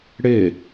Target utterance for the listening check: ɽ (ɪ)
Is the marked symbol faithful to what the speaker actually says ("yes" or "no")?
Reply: yes